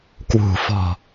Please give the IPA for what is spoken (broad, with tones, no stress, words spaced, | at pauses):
kwṳ˨˩fɔ̤˨˩